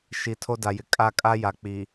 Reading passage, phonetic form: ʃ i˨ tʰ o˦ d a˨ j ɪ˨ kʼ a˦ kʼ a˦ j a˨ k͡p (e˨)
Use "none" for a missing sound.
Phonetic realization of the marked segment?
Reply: i˨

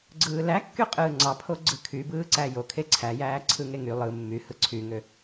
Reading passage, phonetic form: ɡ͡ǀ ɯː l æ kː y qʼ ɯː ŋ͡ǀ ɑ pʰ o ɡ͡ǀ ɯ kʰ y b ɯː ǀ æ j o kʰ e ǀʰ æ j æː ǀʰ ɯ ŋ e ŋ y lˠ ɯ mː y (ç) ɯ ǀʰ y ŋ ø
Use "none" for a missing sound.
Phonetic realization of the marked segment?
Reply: h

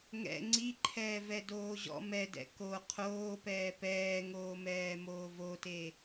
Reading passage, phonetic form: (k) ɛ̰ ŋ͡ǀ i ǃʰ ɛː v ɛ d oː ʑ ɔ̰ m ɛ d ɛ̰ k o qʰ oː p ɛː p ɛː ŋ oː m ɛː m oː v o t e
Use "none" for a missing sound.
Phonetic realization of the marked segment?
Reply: ŋ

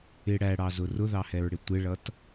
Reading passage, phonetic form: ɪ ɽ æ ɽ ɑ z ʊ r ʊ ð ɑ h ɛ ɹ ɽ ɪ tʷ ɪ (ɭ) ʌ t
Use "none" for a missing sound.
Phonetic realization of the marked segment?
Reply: ɭ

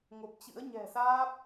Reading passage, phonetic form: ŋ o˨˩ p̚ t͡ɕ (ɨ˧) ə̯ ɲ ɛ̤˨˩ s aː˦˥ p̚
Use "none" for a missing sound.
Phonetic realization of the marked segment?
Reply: ɨ̰˧˥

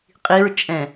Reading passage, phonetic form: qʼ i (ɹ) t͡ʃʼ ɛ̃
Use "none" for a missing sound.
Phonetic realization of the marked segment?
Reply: ɹ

